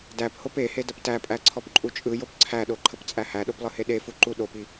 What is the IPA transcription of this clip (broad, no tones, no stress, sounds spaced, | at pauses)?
d æ p h o p e h e d ə p t æ pʼ æ ǀʰ ɔ p ǃʼ u t͡ʃʼ ɯ j o p ǀʰ æ ɗ o ǃʰ ə p t͡sʼ æ h æ ɗ o p lˠ ɯ h e ɗ e f u ǃ u ɗ o p i